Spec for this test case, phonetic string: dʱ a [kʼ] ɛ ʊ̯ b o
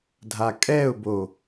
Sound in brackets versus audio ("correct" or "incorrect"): correct